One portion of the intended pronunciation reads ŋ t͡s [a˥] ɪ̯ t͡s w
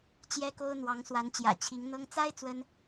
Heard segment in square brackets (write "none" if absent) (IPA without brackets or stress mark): a˥